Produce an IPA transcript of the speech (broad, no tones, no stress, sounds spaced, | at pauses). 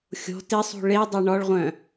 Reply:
xʲ o̤ t ɪ sˤ ṳ ɭ e dˤ ɛ ɳ ɔ ɭ ʁʷ œ̃